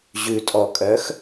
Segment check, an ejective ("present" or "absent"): present